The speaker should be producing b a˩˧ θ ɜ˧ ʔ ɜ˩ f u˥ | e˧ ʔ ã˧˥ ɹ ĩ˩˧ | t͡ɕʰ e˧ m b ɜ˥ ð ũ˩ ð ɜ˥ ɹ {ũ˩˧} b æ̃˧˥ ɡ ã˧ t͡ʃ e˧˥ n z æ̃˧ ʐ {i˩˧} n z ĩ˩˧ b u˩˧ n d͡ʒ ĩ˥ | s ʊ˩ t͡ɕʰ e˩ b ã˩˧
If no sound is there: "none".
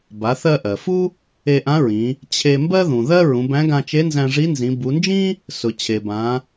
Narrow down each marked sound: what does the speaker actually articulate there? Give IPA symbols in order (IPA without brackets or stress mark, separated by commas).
ũ˩˧, i˧˥